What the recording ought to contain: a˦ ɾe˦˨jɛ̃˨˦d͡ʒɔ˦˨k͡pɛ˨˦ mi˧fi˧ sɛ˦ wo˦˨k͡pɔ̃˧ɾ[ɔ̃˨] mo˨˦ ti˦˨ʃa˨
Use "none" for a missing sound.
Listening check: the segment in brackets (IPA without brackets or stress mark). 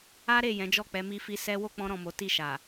ɔ̃˨